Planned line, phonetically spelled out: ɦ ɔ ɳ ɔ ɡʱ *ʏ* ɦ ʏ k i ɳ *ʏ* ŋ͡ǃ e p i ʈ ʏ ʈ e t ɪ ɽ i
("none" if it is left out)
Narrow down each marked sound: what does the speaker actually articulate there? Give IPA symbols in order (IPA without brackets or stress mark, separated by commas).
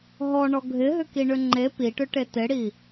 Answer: ɪ, ʏ